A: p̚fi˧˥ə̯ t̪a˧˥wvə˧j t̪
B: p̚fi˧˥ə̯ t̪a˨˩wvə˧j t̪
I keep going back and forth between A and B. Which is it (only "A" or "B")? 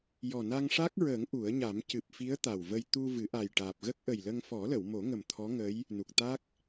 B